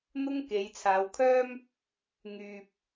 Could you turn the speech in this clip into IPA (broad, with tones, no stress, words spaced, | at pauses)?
n̪ʊ˥ŋke˨˧jt͡sʰaː˨˧wkʰœː˥m | ŋyː˨p̚